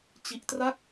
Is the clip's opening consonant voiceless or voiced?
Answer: voiceless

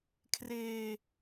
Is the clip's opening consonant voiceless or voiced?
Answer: voiceless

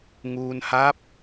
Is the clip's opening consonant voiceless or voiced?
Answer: voiced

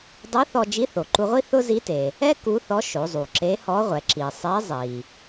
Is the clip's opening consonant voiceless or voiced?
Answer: voiced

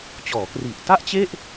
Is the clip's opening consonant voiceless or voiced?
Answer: voiceless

